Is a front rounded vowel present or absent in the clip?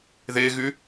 present